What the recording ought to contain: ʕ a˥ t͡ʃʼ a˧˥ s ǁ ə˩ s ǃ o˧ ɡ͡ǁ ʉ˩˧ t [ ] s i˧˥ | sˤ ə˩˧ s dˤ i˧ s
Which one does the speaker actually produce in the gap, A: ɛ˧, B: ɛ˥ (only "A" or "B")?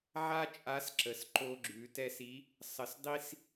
A